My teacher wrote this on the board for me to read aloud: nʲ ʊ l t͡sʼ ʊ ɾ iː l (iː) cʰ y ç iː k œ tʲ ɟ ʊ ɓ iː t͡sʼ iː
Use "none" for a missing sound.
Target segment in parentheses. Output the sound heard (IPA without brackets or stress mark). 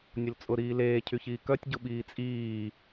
eː